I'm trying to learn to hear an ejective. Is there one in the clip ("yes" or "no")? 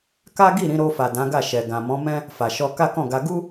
no